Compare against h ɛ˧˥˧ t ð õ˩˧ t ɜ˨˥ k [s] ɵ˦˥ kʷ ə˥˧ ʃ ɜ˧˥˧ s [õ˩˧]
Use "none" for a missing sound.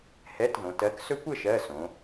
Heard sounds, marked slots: s, õ˩˧

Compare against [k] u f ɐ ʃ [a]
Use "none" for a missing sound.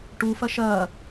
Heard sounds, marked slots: ʈ, ɐ

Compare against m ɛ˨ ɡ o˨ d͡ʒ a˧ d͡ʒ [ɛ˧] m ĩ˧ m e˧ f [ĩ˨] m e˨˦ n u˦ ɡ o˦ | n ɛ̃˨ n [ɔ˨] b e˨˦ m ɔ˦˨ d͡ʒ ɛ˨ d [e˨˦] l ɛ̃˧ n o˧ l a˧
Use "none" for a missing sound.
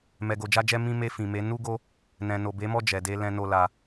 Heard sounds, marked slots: ɛ˧, ĩ˨, o˨, e˧

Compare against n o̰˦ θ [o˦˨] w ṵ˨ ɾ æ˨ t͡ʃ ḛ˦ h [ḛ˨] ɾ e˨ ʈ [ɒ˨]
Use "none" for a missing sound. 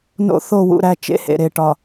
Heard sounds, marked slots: o˦˨, ḛ˨, ɒ˨

